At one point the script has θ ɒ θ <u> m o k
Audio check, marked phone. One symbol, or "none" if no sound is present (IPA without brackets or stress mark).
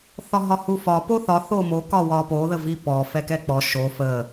o